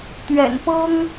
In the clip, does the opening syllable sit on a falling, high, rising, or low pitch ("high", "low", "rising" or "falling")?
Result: low